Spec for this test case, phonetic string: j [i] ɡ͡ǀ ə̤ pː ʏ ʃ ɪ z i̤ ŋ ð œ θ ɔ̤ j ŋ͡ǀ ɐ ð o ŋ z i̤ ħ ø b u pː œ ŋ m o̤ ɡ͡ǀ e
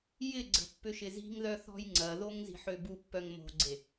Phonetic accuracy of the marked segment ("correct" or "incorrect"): incorrect